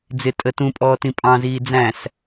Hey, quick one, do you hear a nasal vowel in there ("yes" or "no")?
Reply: yes